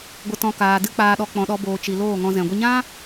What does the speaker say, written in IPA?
ɡʷə˨tɔ̃˨ kaː˨dɨ˧ k͡paː˨ɗɔ˨k͡pɔ̃˨ɗɔ˨ boː˨t͡ʃi˨ loː˦˨ŋɔ̃˧ zɛ̃˨ɡʷə˧ɲã˦

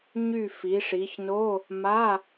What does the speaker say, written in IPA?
ɲy˦˨ fi˩˧ʂi˩˧çno˧˥˧ | ma˧˥˧

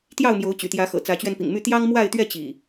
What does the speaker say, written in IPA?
t̪jɑ˥˨ʊ̯mjo˨˦ʊ̯ t͡ɕy̰˨˩t̪jä˨˦xɤ̰˨˩ t͡sä˨˦t͡ɕɥɛ˧npḭ˨˩ŋmy˥˨ t̪jɑ˦ŋmwa˥˨ɪ̯t̪ɥɛ˥˨ t͡ɕḭ˨˩

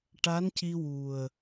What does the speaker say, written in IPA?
ʈa˧˥nci˧wu˨˩ə̯

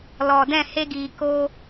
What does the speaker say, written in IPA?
lɔ˨ dɛ̃˦˨he˧ɡiː˨ ko˦

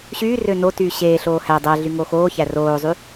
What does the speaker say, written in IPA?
ɕyː rønotyː ɕeːɬoː hæ dˤæɮy ŋoxoːçæ roːzˤy

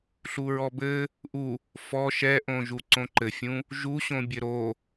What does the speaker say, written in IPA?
ɬuɹɔbɘ | ʔu | fɔ ʃɛʔõʒu ǀõǃɘfʲũ | ʒu ɕõbʲɘɾo

